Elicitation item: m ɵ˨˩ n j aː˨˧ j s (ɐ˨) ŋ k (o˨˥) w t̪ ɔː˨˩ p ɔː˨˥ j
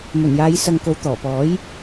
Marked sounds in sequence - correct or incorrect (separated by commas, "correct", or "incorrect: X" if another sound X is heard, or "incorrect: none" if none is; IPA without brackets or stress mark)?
correct, correct